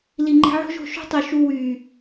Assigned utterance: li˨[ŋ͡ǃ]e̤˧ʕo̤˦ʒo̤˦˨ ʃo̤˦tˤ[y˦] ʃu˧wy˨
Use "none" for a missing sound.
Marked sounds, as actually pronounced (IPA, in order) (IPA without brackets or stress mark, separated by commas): ŋ͡ǃ, y˨